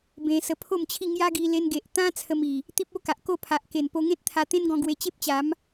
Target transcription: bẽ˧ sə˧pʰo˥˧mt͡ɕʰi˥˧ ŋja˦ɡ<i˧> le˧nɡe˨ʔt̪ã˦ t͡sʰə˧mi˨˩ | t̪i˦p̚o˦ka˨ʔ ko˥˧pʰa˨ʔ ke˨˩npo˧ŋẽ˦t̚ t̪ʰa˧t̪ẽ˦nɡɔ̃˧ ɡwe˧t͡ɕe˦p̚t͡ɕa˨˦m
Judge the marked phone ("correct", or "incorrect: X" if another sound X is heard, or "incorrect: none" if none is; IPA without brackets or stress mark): correct